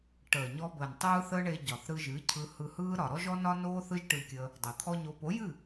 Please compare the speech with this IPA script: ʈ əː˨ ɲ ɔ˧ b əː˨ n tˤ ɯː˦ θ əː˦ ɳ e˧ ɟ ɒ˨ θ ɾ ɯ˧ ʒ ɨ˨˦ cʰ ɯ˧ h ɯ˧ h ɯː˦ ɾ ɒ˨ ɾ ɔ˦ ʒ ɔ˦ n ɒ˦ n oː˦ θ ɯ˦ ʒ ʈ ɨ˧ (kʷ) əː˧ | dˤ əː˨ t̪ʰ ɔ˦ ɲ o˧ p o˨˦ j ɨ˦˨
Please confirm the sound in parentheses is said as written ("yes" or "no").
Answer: no